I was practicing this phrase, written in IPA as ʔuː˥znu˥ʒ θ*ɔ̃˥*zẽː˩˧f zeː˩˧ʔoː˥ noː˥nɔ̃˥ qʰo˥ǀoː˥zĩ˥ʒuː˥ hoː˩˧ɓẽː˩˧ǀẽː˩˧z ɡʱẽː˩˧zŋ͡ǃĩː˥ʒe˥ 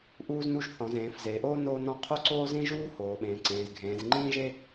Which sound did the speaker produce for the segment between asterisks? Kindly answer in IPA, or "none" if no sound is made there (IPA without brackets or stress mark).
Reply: ɔ̃˩˧